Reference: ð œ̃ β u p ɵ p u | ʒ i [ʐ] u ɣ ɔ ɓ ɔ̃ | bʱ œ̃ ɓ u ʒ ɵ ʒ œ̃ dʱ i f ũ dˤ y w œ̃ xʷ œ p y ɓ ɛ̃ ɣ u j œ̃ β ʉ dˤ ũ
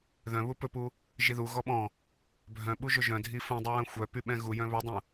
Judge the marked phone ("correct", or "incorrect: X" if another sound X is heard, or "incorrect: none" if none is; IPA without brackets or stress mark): incorrect: ð